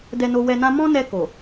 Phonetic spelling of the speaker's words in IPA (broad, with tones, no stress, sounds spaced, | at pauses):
d ɛ˧ n o˧ w ɛ˧ n ã˦ m ɔ̃˦ n ɛ˧ k o˨